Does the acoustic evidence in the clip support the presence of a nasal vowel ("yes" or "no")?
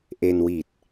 no